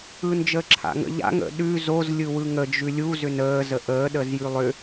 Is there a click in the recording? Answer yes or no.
yes